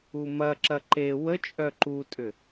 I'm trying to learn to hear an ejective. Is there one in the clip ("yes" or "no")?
yes